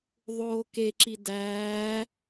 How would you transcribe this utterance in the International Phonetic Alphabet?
ðˤoːkeǁi dæː

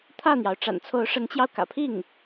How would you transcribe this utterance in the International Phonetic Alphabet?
t̪ʰä˥˩n̪jɑ˩ʊ̯ ʈ͡ʂa̰˨˩nt͡sʰo˧˥ʊ̯ʂə˧˥nt͡ɕjɑ˧ʊ̯ kä̰˨˩pʰi˥˩ŋ

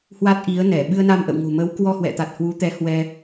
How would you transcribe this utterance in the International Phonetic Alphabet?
hwa˦˥t̚ʔi˨˦ə̯ nɛ˧˩ ɓɨ˧ə̯na˧mʔə̰˧˨wŋo̤˨˩ mə˨˦wkwɔ˧hwɛ̰˧˨t̪a˨˩t̚ hwu˨˦t̪ɛ˨˦ hwɛ˧

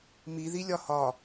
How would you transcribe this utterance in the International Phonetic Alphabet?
miði lʲɒhɒ

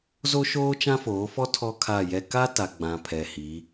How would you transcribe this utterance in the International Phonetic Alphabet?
zo˦ʃoː˦ t͡ʃã˦foː˨˦fɔ˦ tʰɔ˦kʰa˦˨jɛ˦ ka˦ta˨ɡ͡bã˨ pʰɛ˨hi˨˦

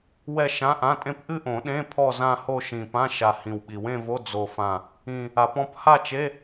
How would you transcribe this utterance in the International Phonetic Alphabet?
wɛ˥˧ ʃã˧˥˧ʔã˧˥˧tʼẽ˥˧p ʔɨ˥˧ʔõ˨˩˦ ɗẽ˧˥˧ pʰɔ˥˧zã˥˧ho˥˧ ʃĩ˨˩pã˧˥˧ ʃa˨˩ hĩ˨˩wɓi˨˩˦w ẽ˥˧vo˧˥˧ d͡zo˨˩fã˨˩ | ĩ˨˩ | a˨˩˦pɔ̃˥˧p ha˥˧t͡ʃe˧˥˧

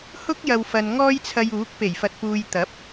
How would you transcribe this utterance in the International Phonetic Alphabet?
hʊ˥k̚jɐ˨wfɐ˨n ŋɔː˥jt͡sʰɐ˧juː˨˥k̚ pe˨˩jfɐ˨t̚puː˨j t̪ɐ˨˥p̚

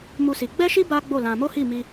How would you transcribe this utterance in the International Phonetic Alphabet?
mu˦si˧ ɡ͡bɛ˦ʃi˦ ba˦ɡ͡bo˦˨lã˧ mo˦hi˦˨mi˧

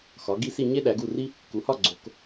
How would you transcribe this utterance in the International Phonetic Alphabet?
xɒ˩˧ɡi˥˨ si˥˨ɲe˥ ɗæ˩˧ɡu˥˨ri˥ | ku˩˧hɒ˥˨ ɡ͡ǀo˩˧k

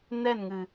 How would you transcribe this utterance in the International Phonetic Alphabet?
nɛ˦˨nŋɨ˨

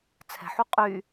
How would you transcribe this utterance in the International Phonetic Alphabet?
t͡sʰɛ̤ħu qʼy

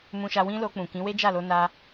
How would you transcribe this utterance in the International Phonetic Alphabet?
mũ˧ʃa˧ wĩ˦lo˧k͡pũ˨kĩ˨˦ we˦d͡ʒa˦˨lo˧na˧

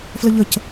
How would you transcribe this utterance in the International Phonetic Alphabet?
fləʎəc

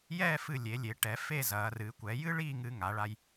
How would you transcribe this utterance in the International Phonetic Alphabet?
jɛː˥˧fɨ˧˩lʲe˩˧lʲe˩˧ ʈɛ˩˧ fe˥˧zɐː˩˧rɨː˩˧ kʷɛ˩˧jɨ˥ɭiː˥˧ ŋɨː˧ŋa˩˧ɭa˧j

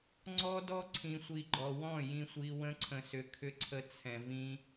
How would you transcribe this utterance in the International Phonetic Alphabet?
ŋ͡ǀɔ˦dɔ˦ ǀʰĩ˨sʷi˨ ɡ͡ǃɔ˨wɔ̃˦˨ jĩ˧sʷi˧ wə̃˧ǀʰə̃˨sʏ˨ kʰʏ˦ ǀʰə˧t͡sʰɛ̃˨vĩ˧

